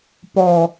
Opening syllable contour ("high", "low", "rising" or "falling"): low